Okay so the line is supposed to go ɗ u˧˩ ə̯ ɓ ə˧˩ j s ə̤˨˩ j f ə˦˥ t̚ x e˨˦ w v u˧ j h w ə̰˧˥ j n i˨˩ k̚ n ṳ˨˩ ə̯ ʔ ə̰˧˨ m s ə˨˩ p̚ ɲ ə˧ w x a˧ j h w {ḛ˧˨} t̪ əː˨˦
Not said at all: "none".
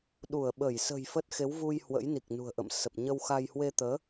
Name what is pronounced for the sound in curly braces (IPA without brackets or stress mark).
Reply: e˧